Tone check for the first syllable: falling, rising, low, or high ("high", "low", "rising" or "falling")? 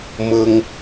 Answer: high